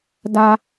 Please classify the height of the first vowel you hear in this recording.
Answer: low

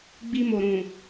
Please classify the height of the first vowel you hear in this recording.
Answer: high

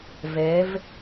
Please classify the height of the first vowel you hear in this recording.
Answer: mid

